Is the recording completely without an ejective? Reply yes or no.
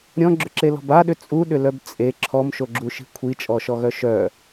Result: no